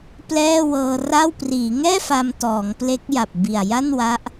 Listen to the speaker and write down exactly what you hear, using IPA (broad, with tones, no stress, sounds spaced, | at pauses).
p l ɛː˥˩ w ɤː˧ r a˥˩ w p r iː˩˦ ŋ ɛː˥˩ f a˧ m t ɔː˩˦ ŋ p l e˦˥ k̚ j a˨˩ p̚ b i˨˩ a̯ j a˥˩ n w a˦˥ ʔ